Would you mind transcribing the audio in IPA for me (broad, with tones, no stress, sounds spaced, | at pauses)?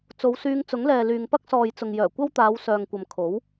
t͡s o˨˧ w s yː˧ ŋ t͡s ʊ˨˥ ŋ l ɛː˨ l yː˨ ŋ p ɐ˥ k̚ s ɔː˨ j t͡s ʊ˨ ŋ j œː˨˩ kʷ ɐ˥ w t̪ aː˨˧ w s œː˨ ŋ kʷ ɐ˨ m kʰ o˨˥ w